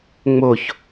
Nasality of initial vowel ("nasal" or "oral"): oral